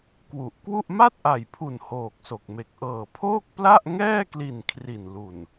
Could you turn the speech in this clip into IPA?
k w u˨˩ ʔ k w u˥˩ ʔ m a˥˩ t̚ ʔ a˨˩ j pʰ u˨˩ n h oː˨˩ k̚ s o˨˩ k̚ m e˨˩ k̚ ʔ ɤː˨˩ pʰ oː˥˩ k̚ p l a˥˩ ʔ ŋ ɛː˥˩ k l i˨˩ n kʰ r i˨˩ n l u˨˩ n

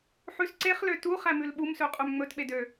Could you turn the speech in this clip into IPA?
ħ ʉ s ǀ e χ l ø t u χ æ m ʉ l ɓ u m s ø qʼ ø m ŋ͡m ɵ t ɓ e d ø

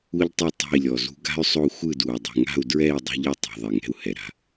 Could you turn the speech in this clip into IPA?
u˥ ʎ tˤ u˥˨ tˤ a̤˥˨ i̯ lʲ ɔ˨˩ z ṳ˥ ɡ a̤˥ y̯ sˤ o˥˨ xʷ ɯ˥˨ d u˨˩ dˤ ṳ˨˩ ŋ a̤˥˨ u̯ d ɹ ɛ˥˨ i̯ dˤ o̤˥ ʎ ɯ˥˨ tˤ ṳ˨˩ ðˤ i˨˩ ŋ ɛ̤˥˨ u̯ h ɛ˨˩ ɾ a̤˥˨

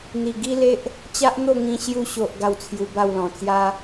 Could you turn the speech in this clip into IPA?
n̪ i˨˩ ɡ i˦ l e˦ ʔ | t͡ɕ a˦ ʔ n̪ o˥˧ ŋ ĩ˧ ɕ j u˧ ɕ o˨ ʔ ɡ a˥˧ w t͡sʰ j u˧ b a˥˧ w l ɔ̃˨˩ t͡s j a˦

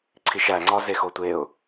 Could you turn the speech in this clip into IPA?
ǀʰ i ʃ æ ŋ͡ǀ ɒ z e x o tʷ e ʊ̯

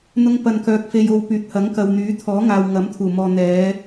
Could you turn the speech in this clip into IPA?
n̪ ʊ˥ ŋ p ɐ˧ n k œː˧ k̚ f e˧ j o˧ w p yː˨˥ t̚ h ɐ˨˥ ŋ k ɐ˨ w n̪ yː˨˥ t̪ʰ ɔː˨˥ ŋ aː˨ w ŋ ɐ˨˥ m t̪ʰ uː˨˩ m ɔː˨ n̪ ɛː˨˧

